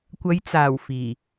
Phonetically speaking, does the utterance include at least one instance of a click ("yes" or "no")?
no